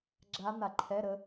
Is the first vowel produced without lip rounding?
yes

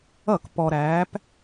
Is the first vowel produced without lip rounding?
yes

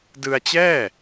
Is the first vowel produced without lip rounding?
yes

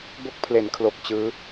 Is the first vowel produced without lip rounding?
no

